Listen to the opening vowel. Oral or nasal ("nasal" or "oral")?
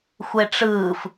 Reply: oral